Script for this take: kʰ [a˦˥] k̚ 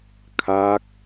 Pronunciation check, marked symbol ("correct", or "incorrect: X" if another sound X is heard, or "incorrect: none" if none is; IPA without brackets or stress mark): correct